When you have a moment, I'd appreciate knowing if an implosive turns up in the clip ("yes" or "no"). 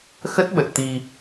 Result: yes